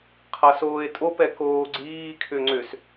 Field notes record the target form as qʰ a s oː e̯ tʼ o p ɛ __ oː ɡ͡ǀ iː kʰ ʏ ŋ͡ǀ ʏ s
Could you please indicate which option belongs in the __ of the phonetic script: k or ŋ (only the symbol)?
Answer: k